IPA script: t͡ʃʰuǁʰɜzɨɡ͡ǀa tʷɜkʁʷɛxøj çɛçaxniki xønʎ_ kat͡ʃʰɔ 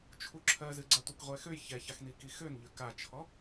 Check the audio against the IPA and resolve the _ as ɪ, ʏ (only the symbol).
ʏ